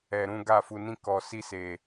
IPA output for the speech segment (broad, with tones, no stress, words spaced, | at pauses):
ɛ˧ɾũ˦ ɡa˦˨fu˧nĩ˦kɔ˧ si˦se˧